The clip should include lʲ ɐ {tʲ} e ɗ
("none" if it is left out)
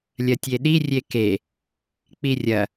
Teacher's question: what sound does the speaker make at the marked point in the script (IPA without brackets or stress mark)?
tʲ